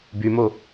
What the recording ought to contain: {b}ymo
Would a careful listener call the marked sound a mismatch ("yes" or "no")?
no